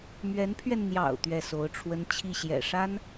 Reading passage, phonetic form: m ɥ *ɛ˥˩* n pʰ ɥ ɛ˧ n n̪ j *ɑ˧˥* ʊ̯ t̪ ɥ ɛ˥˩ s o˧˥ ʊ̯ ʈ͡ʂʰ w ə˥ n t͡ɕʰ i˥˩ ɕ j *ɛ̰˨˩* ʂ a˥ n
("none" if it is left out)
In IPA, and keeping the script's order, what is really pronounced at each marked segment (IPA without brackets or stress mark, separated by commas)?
ɛ˧˥, ɑ̰˨˩, ɛ̰˨˩